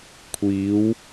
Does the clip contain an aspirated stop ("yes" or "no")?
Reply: yes